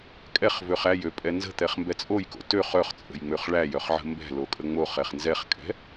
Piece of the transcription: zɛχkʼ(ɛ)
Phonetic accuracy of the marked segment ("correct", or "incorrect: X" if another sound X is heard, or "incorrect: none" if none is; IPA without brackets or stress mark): incorrect: ɛ̤